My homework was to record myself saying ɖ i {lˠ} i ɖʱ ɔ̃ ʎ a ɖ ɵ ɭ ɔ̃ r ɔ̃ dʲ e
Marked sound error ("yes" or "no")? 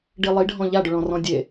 no